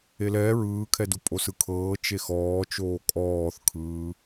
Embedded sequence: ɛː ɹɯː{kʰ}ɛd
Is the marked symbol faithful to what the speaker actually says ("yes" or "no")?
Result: yes